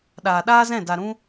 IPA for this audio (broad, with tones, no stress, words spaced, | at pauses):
ɗaː˨ɗaː˦zɛ̃˦˨ da˨ɾũ˧